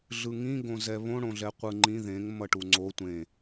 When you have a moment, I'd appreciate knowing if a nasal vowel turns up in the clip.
yes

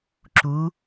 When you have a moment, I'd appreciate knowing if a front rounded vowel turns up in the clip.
no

